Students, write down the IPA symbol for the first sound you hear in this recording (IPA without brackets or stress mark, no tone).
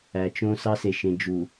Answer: æ